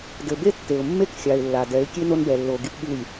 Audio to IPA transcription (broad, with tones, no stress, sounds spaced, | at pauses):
d ɘ˨ b e˦ tː e˨ ʊ̯ mː e˦˨ k xʲ a˨ ɪ̯ lː a˨ d ɛ˨˦ ɪ̯ kʲ e˦ n o˦ n b ɛ˨ lː o˨ ɡ i˦ p ɠ ɨ˦˨ lʲ